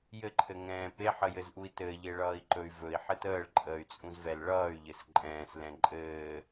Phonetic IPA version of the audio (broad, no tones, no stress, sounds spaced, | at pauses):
j ɘ ǃʰ ɘ ŋ ɛ̃ː p e ħ ə j ɘ z ʔ u i̯ t ɘ ʎ e ɭ ʌː i̯ ǃ ɵ y̯ v ɵ i̯ ħ ɘ t əː ɭ ǃʼ əː y̯ t͡sʼ ũ z v ɛ l ɭ ʌː y̯ ʎ ɘ s ǃʼ ɛ̃ː s l ɛ̃ ǃʼ ɘː